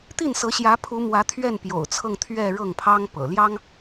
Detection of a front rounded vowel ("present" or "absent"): absent